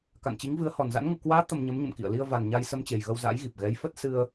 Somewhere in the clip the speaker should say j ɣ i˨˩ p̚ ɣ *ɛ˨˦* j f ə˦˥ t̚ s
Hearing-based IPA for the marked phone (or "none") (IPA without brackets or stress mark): ɛ˨˦